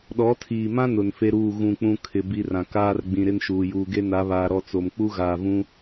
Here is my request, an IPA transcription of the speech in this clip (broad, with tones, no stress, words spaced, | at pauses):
ɗɔ˨˦tʰiː˨mã˦nʊ˨n fe˦ɾuː˦˨ ɣũ˦˨k͡pũ˦ kʰɪ˨ bi˦rã˨ kaː˦rɡ͡bĩ˨ ɾɪ˦nʃuː˨ juː˨ɡe˦na˨˦βaː˨ ɾɔ˦˨t͡so˨m k͡pu˦ɣaː˨vũ˦